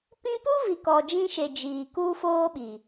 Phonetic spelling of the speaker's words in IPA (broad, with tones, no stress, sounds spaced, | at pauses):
p ĩ˦ p u˦ v i˨ k ɔ˨ d͡ʒ ĩ˦ ʃ e˨ d͡ʒ iː˨ k u˦ f oː˦ ɓ i˨